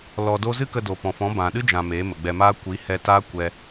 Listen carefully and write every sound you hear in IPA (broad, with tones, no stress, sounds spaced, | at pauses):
l ɔ˧ d o˦ z ɨ˦ k ə˧ d o˨ p ɔ̃˨ f ɔ̃˨˦ b ã˨ ɗ ɨ˦ d͡ʒ ã˨ m eː˨˦ m ə˨ ɡ͡b ɛ˧ m aː˦ kʷ i˨˦ h ɛ˧ t aː˦ kʷ ɛ˧